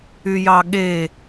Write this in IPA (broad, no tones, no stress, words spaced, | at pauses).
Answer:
yjɑɠe